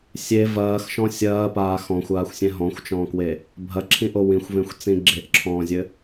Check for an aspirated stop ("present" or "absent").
present